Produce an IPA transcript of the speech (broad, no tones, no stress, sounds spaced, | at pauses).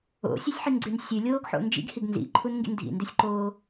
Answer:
o̰ sʲ ʉ sʲ ħ i n ɡ͡ǀ ʉ n sʲ ʉ lʲ oː ɡ ħ o̰ n d͡ʒ ḭ ɡ h i ɡ n z ḭ ǃʰ u n ŋ ɡ ḭ n dʱ ḭ n d ʉ sʲ ǃ oː